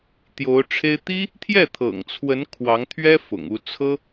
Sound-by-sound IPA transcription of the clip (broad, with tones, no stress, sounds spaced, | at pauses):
t̪ j o˧˥ ʊ̯ ʈ͡ʂʰ e˥ ɪ̯ t̪ i˥ | t̪ʰ j ɛ˥˩ t̪ʰ ɤ̰˨˩ ŋ t͡sʰ w ə˧˥ n kʰ w ɑ˧˥ ŋ t̪ʰ ɥ ɛ˥ f ʊ̰˨˩ ŋ u˥˩ t͡sʰ ɤ˥